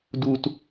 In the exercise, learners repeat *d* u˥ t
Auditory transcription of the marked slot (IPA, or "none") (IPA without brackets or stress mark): d